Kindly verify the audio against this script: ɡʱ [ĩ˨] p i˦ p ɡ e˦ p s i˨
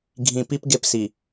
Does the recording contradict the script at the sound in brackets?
no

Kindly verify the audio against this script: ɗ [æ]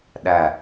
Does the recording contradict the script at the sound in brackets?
no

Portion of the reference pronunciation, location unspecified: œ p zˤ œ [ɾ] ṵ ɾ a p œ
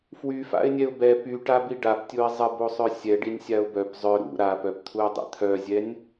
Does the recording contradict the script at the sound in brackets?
no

